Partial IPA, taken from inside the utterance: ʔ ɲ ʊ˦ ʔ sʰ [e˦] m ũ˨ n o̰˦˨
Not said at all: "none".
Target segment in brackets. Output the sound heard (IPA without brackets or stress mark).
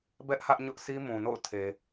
i˦